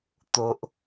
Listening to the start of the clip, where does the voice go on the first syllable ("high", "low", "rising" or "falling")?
low